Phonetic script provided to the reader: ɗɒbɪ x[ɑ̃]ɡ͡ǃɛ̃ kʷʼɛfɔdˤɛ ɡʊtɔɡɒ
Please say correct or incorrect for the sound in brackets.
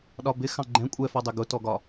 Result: correct